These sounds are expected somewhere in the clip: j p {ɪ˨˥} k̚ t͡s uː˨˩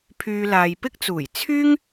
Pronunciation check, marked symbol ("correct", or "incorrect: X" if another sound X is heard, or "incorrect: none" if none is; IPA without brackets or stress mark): incorrect: ɪ˥